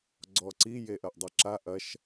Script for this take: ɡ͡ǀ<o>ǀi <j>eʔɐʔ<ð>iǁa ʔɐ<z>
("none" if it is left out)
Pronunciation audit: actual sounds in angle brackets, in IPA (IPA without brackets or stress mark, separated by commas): ɔ, j, dˤ, ʃ